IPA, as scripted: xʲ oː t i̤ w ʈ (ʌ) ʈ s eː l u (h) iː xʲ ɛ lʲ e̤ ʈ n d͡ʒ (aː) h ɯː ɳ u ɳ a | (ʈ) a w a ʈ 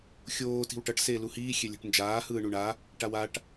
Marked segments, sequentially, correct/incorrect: correct, correct, correct, correct

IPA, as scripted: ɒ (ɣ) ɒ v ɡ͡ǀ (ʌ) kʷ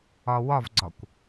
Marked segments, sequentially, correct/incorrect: incorrect, incorrect

